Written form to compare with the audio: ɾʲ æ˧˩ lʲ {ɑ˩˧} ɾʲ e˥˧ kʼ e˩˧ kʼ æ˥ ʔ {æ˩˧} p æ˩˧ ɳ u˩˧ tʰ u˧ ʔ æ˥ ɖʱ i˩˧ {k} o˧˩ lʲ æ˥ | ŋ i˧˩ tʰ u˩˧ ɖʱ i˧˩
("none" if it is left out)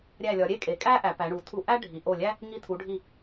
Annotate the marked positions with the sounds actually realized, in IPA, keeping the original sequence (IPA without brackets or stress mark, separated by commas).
ɒ˩˧, æ˩˧, ʔ